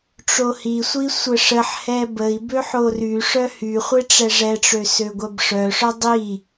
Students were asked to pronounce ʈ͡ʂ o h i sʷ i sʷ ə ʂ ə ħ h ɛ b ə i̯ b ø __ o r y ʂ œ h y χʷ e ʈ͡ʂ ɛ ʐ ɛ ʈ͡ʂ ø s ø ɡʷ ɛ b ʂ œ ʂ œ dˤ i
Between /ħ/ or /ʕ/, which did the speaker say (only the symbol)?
ħ